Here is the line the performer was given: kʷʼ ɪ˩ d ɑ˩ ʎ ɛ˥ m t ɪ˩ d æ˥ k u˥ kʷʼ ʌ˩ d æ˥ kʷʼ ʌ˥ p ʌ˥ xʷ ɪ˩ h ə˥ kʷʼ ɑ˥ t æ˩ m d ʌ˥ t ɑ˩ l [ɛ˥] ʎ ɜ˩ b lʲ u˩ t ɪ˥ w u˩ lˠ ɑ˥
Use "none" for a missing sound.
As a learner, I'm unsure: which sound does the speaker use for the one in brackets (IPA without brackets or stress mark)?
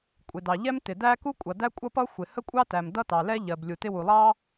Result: ɛ˥